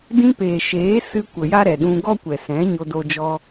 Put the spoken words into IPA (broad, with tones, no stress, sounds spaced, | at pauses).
d ĩ˧ p eː˨ ʃ eː˨˦ s ɨ˧ kʷ ə˨ j a˦ ɾ ɛ˨ ɗ ũ˧ ɡ ɔ˦ kʷ ɛ˨ s ɛ̃˨˦ ɲ o˧ d o˧ d͡ʒ ɔ˧